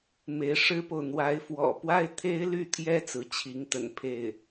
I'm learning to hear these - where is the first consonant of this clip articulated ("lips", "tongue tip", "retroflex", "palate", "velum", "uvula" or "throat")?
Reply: lips